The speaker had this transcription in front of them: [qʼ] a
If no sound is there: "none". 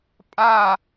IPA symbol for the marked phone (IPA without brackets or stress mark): pʼ